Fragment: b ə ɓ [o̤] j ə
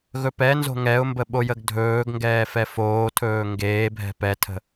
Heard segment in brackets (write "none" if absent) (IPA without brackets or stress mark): o